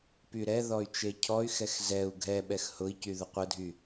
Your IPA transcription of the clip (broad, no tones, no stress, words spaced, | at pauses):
pyɾɛ ðɔy̯t͡ʃecʰɔy̯xɛx zɛu̯ ɡʱɛɓɛx hʊi̯cyðʊ qʷədʱy